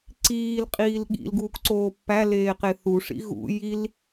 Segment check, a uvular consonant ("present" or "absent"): present